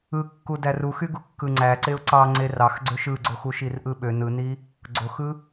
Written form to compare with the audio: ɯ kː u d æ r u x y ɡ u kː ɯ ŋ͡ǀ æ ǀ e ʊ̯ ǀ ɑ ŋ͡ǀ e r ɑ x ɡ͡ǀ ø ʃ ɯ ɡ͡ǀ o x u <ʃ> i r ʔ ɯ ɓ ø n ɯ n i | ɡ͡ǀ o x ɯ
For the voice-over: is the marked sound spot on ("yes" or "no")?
yes